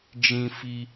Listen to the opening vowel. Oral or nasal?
nasal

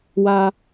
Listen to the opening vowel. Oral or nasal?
oral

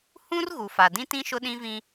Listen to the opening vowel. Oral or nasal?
nasal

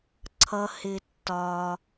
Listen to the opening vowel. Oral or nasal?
oral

